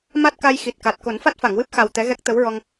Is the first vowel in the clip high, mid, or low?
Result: low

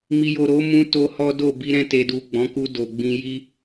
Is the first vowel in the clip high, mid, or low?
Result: high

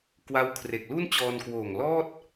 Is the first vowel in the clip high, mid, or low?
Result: low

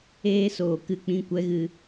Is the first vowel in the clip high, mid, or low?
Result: mid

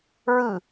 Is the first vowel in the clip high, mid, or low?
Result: high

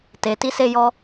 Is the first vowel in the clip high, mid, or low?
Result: mid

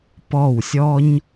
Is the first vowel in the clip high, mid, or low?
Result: mid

